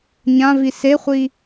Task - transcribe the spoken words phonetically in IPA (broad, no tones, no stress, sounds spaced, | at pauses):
ɲ ã v i s e χʷ i